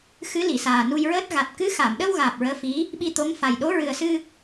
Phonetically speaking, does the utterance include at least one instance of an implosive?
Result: yes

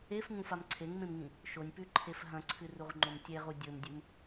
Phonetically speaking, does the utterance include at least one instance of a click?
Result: yes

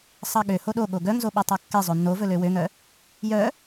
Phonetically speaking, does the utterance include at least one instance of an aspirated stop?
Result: no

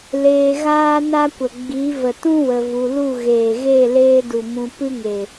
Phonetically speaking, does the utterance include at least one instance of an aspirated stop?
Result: no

